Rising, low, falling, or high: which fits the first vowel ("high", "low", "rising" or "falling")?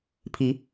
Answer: rising